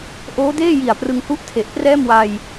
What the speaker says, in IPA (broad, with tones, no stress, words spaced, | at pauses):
ʔoː˦˥deː˥˩ji˨˩a̯ prɯ˧ŋhu˥˩ʔtʰe˨˩ʔ prɛː˥˩mwa˧j